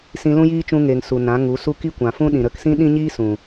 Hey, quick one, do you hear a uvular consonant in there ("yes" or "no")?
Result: no